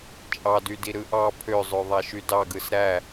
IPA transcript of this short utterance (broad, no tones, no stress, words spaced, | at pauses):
t͡ʃʼɑdydi ɾɯʔɑ pʰøzˤø ðˤæʃydɑɡɯs ɾæ